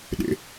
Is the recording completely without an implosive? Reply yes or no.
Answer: no